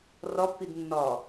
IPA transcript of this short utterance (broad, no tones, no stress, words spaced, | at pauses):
rɒpːid nːɒ